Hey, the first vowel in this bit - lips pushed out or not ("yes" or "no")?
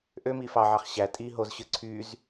yes